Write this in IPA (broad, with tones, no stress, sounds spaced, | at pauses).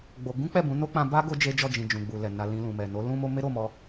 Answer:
ɡ͡b o˧ ɡ ũ˦ k͡p ɛ˦˨ b ũ˨˦ n o˦ k͡p ã˧ b a˦ ɡ o˦ d͡ʒ e˦ d͡ʒ ɔ˦˨ d͡ʒ ĩ˨ d͡ʒ ũ˨ ɡ͡b u˨ l ɛ˨ n a˧ l ĩ˧ l ũ˨ m ɛ˨ n o˨˦ l ũ˦ m o˦ m e˦ ɾ o˦˨ m ɔ˧